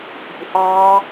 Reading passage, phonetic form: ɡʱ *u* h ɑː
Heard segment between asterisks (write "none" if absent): u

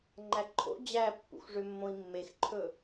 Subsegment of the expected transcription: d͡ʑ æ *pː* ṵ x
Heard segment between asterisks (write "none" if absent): pː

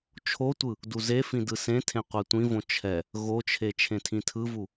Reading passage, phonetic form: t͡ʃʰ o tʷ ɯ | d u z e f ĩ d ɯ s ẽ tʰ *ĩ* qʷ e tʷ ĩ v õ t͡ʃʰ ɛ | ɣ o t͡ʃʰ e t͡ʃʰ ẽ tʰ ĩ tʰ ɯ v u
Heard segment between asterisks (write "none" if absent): ẽ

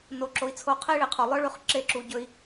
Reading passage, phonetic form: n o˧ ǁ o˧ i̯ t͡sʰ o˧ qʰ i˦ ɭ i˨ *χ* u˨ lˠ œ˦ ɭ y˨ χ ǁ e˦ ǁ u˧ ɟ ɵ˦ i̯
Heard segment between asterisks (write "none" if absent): qʰ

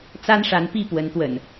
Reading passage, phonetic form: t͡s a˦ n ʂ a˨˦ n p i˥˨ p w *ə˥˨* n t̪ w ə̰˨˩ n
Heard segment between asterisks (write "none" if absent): ə˨˦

